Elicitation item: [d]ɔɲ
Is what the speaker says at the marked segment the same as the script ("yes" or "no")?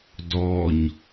yes